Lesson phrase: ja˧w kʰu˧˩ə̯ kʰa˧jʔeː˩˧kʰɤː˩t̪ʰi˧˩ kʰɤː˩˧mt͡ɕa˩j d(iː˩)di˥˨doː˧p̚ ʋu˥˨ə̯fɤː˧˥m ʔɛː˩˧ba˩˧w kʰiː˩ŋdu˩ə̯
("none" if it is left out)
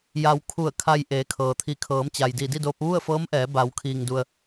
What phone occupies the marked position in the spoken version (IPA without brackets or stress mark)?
iː˧˩